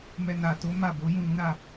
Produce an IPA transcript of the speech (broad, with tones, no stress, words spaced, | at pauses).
mɛ˧ na˨to˨˦ ma˦˨bo˨˦ jũ˦˨lũ˨˦ ɾa˦˨